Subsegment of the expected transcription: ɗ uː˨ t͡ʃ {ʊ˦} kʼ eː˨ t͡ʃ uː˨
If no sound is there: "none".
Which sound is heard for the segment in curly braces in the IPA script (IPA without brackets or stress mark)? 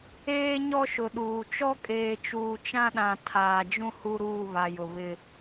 ɔ˦